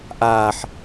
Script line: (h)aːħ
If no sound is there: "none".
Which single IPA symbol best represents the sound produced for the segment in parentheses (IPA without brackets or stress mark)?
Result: ʔ